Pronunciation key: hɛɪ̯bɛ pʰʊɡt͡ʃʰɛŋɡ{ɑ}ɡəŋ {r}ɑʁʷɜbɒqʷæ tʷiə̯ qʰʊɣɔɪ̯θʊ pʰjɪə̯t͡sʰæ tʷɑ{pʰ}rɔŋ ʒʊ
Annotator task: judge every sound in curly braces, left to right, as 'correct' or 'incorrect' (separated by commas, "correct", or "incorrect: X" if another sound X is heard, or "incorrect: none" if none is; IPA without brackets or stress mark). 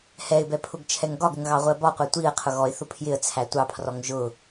incorrect: ɒ, incorrect: ɣ, correct